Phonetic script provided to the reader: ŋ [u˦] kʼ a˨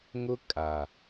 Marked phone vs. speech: incorrect: ʊ˦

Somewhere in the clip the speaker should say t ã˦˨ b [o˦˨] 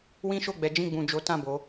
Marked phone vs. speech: incorrect: o˨˦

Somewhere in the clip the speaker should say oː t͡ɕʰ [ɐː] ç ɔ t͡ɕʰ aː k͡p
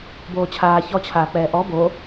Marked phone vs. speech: incorrect: aː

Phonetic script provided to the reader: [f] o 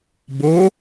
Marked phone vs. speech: incorrect: b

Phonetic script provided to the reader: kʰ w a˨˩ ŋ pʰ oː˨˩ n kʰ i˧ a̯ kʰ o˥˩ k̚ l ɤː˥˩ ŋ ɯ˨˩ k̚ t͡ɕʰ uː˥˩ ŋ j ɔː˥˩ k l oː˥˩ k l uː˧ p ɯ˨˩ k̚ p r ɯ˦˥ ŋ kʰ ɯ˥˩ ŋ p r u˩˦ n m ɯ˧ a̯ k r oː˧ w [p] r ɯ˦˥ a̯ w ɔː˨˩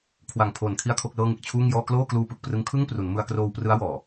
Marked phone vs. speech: correct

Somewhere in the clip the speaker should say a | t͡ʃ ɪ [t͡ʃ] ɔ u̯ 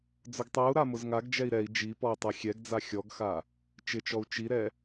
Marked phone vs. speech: correct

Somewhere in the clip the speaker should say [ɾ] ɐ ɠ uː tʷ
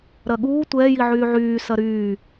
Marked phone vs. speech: correct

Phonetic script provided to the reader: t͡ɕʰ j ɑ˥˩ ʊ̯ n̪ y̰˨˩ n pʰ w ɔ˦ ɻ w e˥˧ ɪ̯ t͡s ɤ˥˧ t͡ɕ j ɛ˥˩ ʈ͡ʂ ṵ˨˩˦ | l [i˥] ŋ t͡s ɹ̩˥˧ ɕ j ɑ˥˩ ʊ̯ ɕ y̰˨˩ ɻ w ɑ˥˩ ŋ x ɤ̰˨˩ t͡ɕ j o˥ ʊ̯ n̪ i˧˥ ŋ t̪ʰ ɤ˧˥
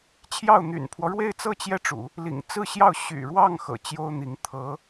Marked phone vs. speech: incorrect: ḭ˨˩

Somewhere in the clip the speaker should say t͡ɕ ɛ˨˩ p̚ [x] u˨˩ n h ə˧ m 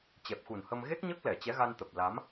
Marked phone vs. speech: correct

